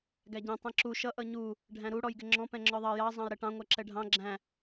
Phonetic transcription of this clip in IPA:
ɡæɟɛ̃ tˤɛ̃ǁu ʃʌ ʔʌɲu | ɖʱæ̃ɾu ɽɔjɡɪŋ͡ǁɔ̃ pɛ̃ŋ͡ǁɔðˤɑ jɑ zˤɑ̃jɾɛʈɑ̃ ŋʷæǁɛɖʱɑ̃ ɡ͡ǁæ̃

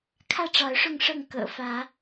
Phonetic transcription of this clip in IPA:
kʰä˥˨ʈ͡ʂɑ˨˦ʊ̯ʂʊ˥˨ŋʂɤ˥˨ŋ kɤ̰˨˩fä˨˦

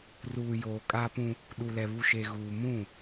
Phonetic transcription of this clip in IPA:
ruː˨ joː˨kʼaː˦pũ˦ | ɗu˨lɛ˨βu˨ʃe˨ ɣuː˨mũ˦˨

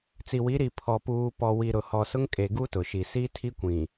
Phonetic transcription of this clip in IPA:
t͡si˨wi˨˦ɾi˨ pʰɔ˨puː˨ pɔ˨ wi˨ɾʊ˨hɔ˨sʊ˦ŋ kʼe˨ɡu˦ tʊ˨ʃi˨ si˦tʰi˦kʷĩ˨

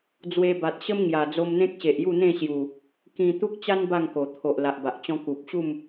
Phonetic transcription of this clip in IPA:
d͡zwe˧ba˨t̚ɕə˦m ŋja˨˩ d͡zo˧mn̪ẽ˦k̚ɕe˨ʔ ju˥˧n̪ẽ˥˧ ɕju˨˩ | kĩ˧t̪u˦k̚t͡ɕa˦n ba˥˧ŋko˨˩ t̪ʰo˨ʔla˨ʔba˨ʔt͡ɕɔ̃˦ ku˨p̚ɕu˥˧m

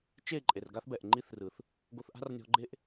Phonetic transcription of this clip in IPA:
t͡ʃe˦˨ ǃʼe˨rɡa˦θbɛ˨ʔ ŋ͡ǃi˦θrɯ˨θ | ɡo˧θʔa̤˦rnʲɔ̤˧ɡ͡ǃe˦ʔ

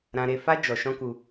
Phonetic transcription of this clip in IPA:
ɾã˧ɾe˧fa˦ d͡ʒɔ˧ ʃɔ̃˦ku˧

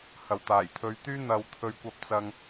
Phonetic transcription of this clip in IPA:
hɐ˨˩wt̪aː˨˩j t̪ʰɵ˨˧ɥt̪yː˥ n̪ɐ˨wt̪ʰɵ˨ɥ kʷɐ˧p̚t͡sɐ˧ŋ

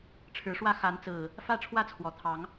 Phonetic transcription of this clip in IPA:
ʈ͡ʂʰɻ̩˨˦ʂwä˦ xa˨˦nt͡sɹ̩˨˩ | fä˥˨ ʈ͡ʂʰwä˦t͡sʰwɔ˨˩t̪ʰɑ˨˦ŋ

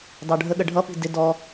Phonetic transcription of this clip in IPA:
dɑɖʱəɠə ɖʱʌpi̤ dɪ dɔ

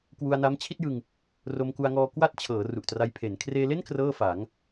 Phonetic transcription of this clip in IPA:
kwu˧a̯na˦˥mt͡ɕʰi˥˩t̚jɯ˧ŋ | ro˧mku˧a̯ŋɔː˧ kwa˥˩t̚t͡ɕʰɤː˩˦ ru˨˩ʔtra˧j pʰe˩˦n kʰreː˧le˥˩n krɤː˥˩fa˩˦ŋ

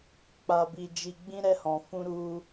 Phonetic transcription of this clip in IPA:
k͡pa˧bi˧ d͡ʒi˧ɡ͡bĩ˦ ɾɛ˦hɔ̃˧ fũ˦ɾu˦

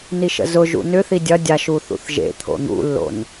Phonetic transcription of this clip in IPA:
niʃə̰zʊ ʒṵnʏθi dʲɐ dʲaʃ uθṵθʒḛ t̪ʰo̰n̪ṵlːo̰n

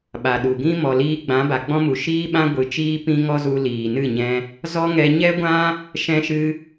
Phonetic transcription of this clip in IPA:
ɓa˨ɗu˨ ɡĩ˦ mɔ˨liː˧ ɡ͡bã˨˦ba˨ɡ͡bɔ̃˦mu˨ ʃiː˦ɓã˦ ɡʷɨ˨˦t͡ʃiː˦ pĩ˧ ŋɔ˦zu˧ liː˨nɨ˦˨ɲɛ̃˧ | zɔ˦ŋɛ˧ ɲɛ˦ɡʷã˦ | ʃɛ̃˦ʃɨ˦

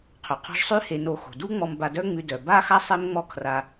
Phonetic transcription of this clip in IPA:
qʰœ˩qʰɔ̤˧ʒ sˤʉ˥ he˧no˧ xo̤˩du˥ŋ͡mɔ˧m ba˧dœ˥ŋ͡mʉ˧ dœ˩ba˥xa˥ sˤe˥mŋ͡mɔ˥ kʰra˧

